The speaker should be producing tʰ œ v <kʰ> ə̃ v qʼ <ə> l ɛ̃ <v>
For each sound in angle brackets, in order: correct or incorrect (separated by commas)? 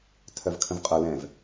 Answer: correct, incorrect, correct